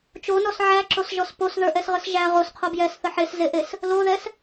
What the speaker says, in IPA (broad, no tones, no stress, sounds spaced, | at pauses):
t͡ʃ o n ɔ s ʕ æ ǁ o s ʒ ɔ s p o s ð ə˞ ʔ ɛ s ʁ ə s ʒ æ ʁ o s qʰ o b j ɛ s θ ə ħ e s z e ʔ e s | l o ð ɛ s